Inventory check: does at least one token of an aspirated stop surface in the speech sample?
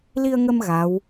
no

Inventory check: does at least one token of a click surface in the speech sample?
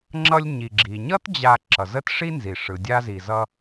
yes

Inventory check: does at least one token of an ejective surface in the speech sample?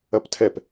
no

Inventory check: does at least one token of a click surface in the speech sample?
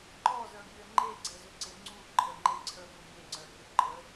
yes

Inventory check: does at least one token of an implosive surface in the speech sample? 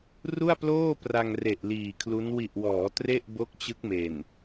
no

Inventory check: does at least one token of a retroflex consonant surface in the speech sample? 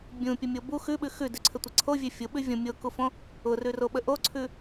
no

